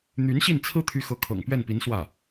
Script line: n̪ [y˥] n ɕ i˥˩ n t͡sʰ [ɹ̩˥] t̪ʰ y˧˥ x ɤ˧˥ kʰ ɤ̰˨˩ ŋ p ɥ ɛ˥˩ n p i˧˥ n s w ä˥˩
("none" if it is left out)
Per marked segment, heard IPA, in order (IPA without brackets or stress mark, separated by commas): y˧˥, ɹ̩˥